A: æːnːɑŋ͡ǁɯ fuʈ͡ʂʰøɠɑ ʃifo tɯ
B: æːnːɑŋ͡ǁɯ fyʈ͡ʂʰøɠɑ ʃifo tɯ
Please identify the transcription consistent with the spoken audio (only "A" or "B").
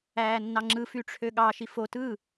B